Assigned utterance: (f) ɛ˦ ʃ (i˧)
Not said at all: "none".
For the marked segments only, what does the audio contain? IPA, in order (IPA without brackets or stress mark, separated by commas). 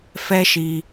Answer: f, i˧